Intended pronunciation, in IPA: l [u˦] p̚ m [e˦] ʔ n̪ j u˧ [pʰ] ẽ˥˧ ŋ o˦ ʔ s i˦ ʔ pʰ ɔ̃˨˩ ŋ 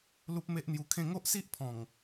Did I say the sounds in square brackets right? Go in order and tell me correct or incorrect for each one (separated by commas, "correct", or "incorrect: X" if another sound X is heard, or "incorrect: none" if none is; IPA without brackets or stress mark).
correct, correct, incorrect: kʰ